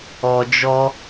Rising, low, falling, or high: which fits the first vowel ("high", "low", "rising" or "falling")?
low